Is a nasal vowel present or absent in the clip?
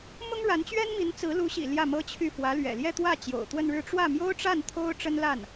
absent